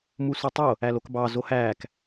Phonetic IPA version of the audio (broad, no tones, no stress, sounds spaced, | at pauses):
m u s u tˤ o | æ l o k b ɑ z o h æː k